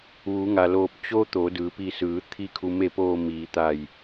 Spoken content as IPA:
ʋ u˩˧ ŋ a˩ l oː˧˩ p̚ t͡ɕ o˧ t̪ o˩˧ d ɯː˩ p i˧˩ s ɯː˩˧ t̪ʰ i˧˩ kʰ u˩ m e˧˩ p oː˧˩ m iː˩ t̪ a˧˩ j

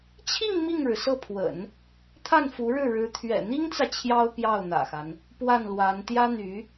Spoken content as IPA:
t͡ɕʰ i˥˧ ŋ m i˥˩ ŋ ɻ ɻ̩˩ s ɤ˥˩ pʰ w ə̰˨˩˦ n | t̪ʰ a˥˩ n f u˧˥ ɻ ɻ̩˥˩ ɻ ɻ̩˧˥ t̪ʰ ɥ ɛ̰˨˩ n̪ i˥ ŋ t͡s ä˨ t͡ɕʰ j ɑ˥ ʊ̯ p j ɑ˥˩ ʊ̯ n̪ ä̰˨˩ x a˦ n | p w a˥˩ n l w a˧˥ n t̪ j ä˥ n̪ y˧˥

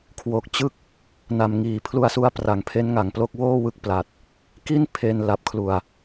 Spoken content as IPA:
kʰ w o˨˩ k̚ t͡ɕ ɯ˥˩ k̚ | n a˨˩ m ŋ iː˩˦ pʰ l u˦˥ a̯ s u˦˥ a̯ p r a˩˦ ŋ pʰ e˦˥ n ŋ a˨˩ ŋ p l o˥˩ k̚ w oː˥˩ w ɯ˦˥ k̚ p l a˨˩ t̚ | k i˥˩ n pʰ e˧ n l a˨˩ p̚ kʰ l u˨˩ a̯

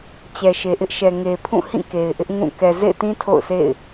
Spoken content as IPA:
t͡ɕ ɛ˨ ʃ e˨ ʔ ɪ˦ ʔ ʃ ɛ˨ ŋ e˨ pʰ ũ˦˨ h ĩ˦˨ k e˨ ɪ̯ ʔ ɪ˦ ʔ ŋ ũ˦˨ k ɛ˨ z ḛ˦˨ ɪ̯ t ĩ˦ tʰ o̰˦˨ ʊ̯ s ḛ˦˨ ɪ̯

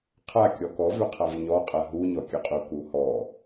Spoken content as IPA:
qʰ a kʲ ɔ k ɔ v ʏ qʰ a v ɲ ɔ qʼ a ɦ u ɲ ɔ kʲ ɘ qʼ u k u h ɔ

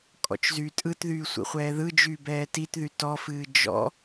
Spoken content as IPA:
kʼ ɔ̰ t͡ʃ z yː tʼ ɯ t ð yː sʷ ḭ χʷ ɛː ð ɯ d͡ʒ yː b ɛː t i t ð y t ɔ f ɨː d͡ʒ ɔ̰

